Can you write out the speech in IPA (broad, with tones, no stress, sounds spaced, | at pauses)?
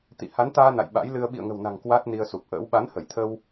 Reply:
t̪ ḭ˧˨ h a˨˦ n t̪ aː˧ n a̰˧˨ j ɓ a̰˧˥ j l ɨ˧ ə̯ ɓ ḭ˧˨ ə̯ ŋ ə̤˨˩ w n a̤˨˩ ŋ k w a˦˥ t̚ n i˧ ə̯ s u˨˩ p̚ ʔ ə̰ː˧˥ w ɓ a˨˦ n h ə˧˩ j t̪ʰ ə˧ w